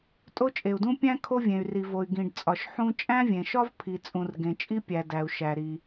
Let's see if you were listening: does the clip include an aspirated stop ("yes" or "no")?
yes